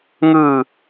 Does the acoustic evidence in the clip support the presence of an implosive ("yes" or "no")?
no